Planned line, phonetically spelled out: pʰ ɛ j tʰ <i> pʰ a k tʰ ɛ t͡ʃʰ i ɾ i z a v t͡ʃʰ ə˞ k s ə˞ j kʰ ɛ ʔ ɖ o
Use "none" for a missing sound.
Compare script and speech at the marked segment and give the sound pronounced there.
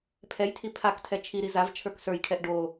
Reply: i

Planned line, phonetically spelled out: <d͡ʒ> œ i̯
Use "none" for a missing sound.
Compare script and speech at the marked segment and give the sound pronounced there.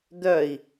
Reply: d̪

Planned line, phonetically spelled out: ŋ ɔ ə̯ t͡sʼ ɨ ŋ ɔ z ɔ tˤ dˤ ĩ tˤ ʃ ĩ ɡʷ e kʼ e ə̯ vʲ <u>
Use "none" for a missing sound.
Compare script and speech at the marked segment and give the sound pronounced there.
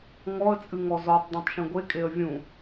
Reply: ũ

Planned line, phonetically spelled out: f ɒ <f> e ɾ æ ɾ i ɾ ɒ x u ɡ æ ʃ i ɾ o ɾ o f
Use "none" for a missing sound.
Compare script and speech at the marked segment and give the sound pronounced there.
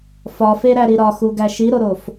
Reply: f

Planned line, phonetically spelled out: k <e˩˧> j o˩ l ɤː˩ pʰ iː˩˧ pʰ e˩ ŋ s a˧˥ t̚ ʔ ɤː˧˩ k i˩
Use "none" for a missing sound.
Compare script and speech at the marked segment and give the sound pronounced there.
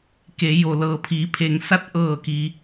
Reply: e˩˧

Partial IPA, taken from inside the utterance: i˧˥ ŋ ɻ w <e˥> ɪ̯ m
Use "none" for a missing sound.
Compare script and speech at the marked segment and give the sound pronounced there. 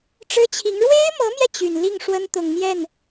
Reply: e˥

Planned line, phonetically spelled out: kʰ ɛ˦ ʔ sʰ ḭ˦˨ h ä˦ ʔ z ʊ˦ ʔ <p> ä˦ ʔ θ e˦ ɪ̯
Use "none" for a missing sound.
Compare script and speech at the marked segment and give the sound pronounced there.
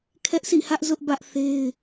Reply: b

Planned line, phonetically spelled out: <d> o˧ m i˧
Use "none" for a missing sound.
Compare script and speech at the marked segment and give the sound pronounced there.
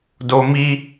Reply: d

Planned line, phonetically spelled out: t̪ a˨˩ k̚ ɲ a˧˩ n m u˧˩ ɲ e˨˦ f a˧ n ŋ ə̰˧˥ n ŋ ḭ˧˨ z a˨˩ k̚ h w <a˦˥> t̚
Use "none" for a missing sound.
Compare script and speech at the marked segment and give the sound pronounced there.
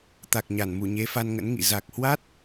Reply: a˦˥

